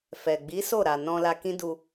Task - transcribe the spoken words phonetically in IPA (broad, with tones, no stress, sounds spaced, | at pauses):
f ɛ˨ ɡ͡b i˨˦ s o˦˨ ɾ a˨ n ɔ̃˧ l a˧ k ĩ˦ d u˧